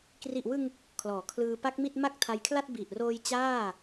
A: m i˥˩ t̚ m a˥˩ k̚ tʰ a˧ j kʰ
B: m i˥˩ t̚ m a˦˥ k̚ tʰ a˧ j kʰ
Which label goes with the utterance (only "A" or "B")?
A